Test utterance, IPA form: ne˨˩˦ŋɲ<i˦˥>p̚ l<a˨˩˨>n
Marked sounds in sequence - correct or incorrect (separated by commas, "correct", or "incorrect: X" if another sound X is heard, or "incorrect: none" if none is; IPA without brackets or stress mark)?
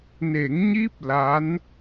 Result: correct, incorrect: a˧˥